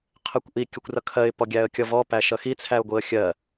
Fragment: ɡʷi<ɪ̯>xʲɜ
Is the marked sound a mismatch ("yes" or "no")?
yes